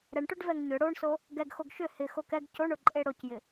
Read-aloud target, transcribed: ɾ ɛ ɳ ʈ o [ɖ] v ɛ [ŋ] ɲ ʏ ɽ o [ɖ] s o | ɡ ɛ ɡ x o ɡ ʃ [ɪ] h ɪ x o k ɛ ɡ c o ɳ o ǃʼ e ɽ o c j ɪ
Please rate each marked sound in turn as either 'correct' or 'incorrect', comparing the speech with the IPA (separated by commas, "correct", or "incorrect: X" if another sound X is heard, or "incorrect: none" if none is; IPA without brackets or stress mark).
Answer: correct, correct, incorrect: ɳ, incorrect: ʏ